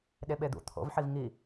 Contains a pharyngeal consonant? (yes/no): yes